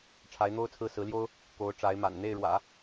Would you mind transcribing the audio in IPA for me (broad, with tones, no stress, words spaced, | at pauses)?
ʈ͡ʂʰa˧˥ɪ̯n̪o˥ʊ̯t͡sʰɹ̩˥˩ sɹ̩˧˥ljo˥ʊ̯ | ko˧˥ʊ̯ʈ͡ʂa˧˥ɪ̯ ma̰˨˩nn̪e˥˩ɪ̯ɻwä̰˨˩˦